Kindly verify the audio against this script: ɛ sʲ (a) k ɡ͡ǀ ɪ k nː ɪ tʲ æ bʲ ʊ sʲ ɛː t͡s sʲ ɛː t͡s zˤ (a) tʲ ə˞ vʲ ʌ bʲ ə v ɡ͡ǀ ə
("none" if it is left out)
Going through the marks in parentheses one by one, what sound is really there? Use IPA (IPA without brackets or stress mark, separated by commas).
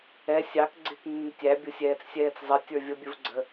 ɑ, ʌ